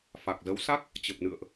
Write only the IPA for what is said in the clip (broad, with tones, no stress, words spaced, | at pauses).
fa˨˩k̚zə˨˦wsa˦˥k̚ | t͡ɕə˨˩p̚nɨ̰˧˨ə̯ʔ